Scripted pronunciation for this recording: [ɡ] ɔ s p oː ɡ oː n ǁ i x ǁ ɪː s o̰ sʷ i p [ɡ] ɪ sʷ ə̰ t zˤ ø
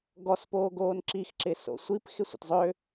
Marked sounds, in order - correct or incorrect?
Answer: correct, incorrect

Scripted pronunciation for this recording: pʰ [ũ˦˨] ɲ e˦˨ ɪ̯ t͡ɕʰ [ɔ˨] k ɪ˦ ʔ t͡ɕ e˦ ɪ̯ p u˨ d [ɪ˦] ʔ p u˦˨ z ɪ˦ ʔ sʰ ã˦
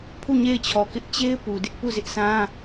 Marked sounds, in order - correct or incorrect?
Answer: incorrect, correct, correct

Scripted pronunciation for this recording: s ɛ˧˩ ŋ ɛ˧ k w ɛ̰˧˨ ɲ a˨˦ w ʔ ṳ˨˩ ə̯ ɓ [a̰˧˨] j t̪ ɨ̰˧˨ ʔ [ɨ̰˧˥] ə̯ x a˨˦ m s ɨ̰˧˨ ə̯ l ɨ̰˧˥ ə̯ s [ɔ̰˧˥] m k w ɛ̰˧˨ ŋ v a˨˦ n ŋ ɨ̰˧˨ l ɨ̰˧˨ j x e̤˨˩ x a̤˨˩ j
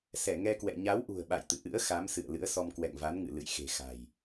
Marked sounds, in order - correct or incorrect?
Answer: correct, correct, incorrect

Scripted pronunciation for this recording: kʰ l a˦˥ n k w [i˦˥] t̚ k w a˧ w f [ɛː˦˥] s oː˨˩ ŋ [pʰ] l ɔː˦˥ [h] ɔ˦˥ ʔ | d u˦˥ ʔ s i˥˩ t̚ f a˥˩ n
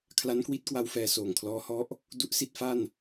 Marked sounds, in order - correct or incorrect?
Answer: correct, incorrect, incorrect, correct

